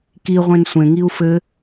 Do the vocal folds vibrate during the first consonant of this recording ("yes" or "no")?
no